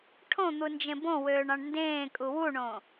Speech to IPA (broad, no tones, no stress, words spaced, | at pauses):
ʈʰõn̪u nd͡ʒẽbõwøːɳ ɑ̃ɳndẽːkʼu wuɳõ